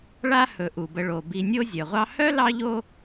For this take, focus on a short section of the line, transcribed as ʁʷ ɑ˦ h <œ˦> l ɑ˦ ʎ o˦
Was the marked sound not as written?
yes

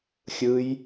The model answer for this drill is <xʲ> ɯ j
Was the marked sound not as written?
no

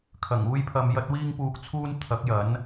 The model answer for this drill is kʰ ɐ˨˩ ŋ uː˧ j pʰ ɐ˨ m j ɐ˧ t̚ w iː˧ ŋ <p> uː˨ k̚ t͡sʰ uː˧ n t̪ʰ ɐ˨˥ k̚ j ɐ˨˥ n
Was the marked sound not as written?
no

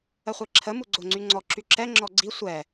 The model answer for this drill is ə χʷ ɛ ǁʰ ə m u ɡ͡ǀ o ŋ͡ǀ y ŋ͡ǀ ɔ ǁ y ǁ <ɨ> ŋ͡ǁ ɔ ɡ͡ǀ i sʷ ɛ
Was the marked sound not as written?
yes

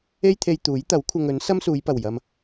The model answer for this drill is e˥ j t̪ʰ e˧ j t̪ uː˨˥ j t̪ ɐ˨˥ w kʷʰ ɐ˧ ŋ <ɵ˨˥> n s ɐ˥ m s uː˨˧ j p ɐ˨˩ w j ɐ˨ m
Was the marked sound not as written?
no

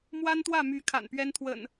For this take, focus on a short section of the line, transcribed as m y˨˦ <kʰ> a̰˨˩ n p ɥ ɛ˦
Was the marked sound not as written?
no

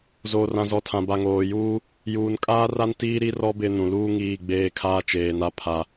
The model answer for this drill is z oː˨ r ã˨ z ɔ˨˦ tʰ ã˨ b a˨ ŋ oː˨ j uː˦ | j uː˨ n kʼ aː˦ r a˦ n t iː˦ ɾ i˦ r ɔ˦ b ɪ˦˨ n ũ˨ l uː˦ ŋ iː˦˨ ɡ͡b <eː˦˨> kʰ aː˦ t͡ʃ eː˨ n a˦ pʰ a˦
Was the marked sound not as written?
no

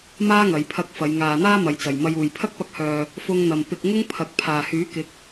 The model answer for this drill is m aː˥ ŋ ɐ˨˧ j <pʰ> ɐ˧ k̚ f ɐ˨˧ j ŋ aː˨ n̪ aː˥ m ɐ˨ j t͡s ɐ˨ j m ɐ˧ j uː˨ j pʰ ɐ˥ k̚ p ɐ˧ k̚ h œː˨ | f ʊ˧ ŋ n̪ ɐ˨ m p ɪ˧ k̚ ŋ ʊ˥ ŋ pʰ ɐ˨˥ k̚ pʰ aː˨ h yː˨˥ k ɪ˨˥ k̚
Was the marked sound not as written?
no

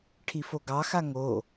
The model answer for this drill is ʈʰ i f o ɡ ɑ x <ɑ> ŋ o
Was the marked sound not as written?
yes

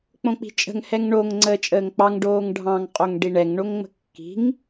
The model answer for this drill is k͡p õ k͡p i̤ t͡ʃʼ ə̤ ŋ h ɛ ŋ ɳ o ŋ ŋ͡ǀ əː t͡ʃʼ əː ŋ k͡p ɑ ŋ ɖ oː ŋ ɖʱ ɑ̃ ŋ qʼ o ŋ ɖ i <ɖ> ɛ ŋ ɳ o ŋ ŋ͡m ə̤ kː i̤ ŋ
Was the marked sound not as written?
yes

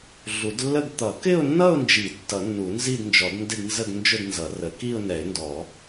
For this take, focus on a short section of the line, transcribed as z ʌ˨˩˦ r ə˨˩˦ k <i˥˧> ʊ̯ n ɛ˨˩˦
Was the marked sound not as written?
no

